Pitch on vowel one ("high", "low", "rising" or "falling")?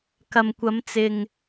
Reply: low